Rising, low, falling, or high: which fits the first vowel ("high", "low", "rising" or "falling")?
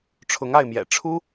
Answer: rising